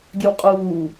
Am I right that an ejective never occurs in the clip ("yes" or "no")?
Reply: no